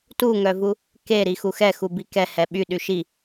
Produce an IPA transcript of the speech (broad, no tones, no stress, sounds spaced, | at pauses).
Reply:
t u ŋ œ v u | k e ɾ i x u x ɛ x u b i k ɛ h ɛ ɓ y ɗ y ʃ i